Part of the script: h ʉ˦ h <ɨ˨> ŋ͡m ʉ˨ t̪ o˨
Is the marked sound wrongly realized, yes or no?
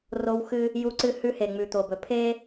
yes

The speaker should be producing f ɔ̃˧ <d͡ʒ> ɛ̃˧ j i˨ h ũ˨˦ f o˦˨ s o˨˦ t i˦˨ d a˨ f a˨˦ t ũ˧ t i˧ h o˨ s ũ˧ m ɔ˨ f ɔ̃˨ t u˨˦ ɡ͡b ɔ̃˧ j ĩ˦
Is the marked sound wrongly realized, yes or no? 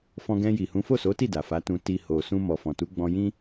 yes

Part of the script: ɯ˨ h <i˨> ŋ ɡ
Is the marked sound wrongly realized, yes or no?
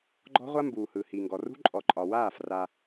no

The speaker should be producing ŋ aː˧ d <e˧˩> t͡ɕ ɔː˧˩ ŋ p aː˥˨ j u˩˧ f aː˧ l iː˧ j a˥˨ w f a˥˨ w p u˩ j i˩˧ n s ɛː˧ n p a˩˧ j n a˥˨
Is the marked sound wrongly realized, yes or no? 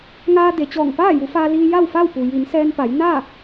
yes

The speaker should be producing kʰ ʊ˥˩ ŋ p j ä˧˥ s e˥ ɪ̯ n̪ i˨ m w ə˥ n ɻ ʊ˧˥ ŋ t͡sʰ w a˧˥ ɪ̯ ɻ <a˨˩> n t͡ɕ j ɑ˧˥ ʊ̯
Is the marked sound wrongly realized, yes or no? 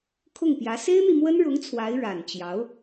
no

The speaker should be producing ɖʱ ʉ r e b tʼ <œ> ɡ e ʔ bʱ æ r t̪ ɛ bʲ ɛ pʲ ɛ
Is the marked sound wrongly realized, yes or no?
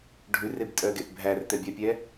no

